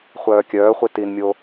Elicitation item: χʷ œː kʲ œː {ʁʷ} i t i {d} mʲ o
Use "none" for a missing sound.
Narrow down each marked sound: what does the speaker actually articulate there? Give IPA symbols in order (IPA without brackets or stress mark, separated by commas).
χʷ, n